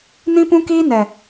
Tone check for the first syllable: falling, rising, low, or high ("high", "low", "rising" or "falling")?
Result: high